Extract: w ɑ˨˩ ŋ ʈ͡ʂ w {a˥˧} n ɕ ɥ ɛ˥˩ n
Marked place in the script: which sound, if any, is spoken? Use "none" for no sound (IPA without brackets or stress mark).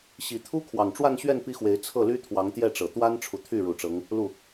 a˥˧